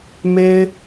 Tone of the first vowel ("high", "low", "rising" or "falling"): high